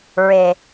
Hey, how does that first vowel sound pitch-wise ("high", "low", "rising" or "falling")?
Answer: low